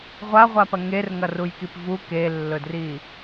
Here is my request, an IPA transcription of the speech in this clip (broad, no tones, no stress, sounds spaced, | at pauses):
ʁʷ a ʁʷ a p ɐ ŋ e r ŋ ɐ r u j k i p v u k e lː ɵ d r i